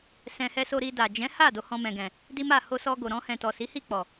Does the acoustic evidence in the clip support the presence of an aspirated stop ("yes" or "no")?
no